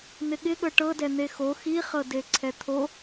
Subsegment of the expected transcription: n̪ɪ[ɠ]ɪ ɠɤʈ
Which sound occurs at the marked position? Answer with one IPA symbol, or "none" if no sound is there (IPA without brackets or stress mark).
ɠ